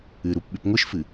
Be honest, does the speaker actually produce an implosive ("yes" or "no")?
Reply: yes